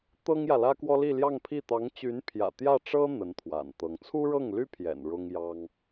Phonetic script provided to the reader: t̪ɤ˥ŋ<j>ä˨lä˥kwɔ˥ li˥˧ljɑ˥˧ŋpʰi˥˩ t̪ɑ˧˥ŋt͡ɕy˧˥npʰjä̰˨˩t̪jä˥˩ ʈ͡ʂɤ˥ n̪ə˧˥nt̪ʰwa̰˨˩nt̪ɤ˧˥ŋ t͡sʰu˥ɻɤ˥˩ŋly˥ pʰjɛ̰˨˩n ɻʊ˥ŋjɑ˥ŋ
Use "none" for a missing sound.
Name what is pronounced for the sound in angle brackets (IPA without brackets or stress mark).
j